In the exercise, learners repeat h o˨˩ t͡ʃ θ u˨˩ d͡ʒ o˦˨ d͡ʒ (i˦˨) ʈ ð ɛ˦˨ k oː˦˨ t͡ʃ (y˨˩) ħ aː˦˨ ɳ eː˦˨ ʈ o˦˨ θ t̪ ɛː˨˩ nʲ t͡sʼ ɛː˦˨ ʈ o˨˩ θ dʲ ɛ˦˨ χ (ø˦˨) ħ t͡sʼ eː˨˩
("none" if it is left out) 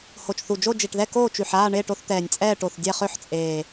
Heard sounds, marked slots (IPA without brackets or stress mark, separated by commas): i˨˩, y˨˩, ø˦˨